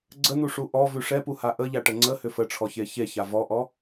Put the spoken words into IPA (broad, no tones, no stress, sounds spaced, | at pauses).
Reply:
ɡ͡ǀ ə n̪ u ʂ u ʔ ɔ v ʉ ʂ ɛ p u h a ʔ ə ʎ a ʈ ə ŋ͡ǀ ə h ʏ f ə ʈ͡ʂʰ ɔ ç e ç e ç a v ɔ ʔ ɔ